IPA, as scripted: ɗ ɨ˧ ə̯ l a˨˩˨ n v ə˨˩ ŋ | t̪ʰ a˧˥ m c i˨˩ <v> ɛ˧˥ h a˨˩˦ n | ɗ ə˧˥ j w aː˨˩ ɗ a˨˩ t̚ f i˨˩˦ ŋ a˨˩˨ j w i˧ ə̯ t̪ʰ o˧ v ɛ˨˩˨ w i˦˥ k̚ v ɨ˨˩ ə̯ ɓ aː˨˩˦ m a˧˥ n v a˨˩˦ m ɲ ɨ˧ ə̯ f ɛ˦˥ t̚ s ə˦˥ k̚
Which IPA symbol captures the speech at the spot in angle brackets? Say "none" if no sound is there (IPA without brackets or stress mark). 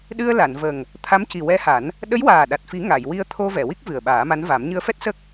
w